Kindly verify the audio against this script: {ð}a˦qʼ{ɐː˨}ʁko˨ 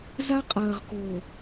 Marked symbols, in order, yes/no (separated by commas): no, yes